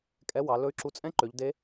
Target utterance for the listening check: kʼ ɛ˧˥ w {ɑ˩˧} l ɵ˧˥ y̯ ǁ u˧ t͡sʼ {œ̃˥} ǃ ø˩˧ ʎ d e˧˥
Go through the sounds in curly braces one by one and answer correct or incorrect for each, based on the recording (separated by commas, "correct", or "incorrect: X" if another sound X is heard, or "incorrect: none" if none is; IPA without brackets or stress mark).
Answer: correct, incorrect: ɛ̃˥